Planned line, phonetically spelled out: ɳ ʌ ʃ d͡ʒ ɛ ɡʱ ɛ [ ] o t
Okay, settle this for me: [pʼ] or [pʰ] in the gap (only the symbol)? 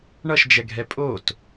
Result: pʼ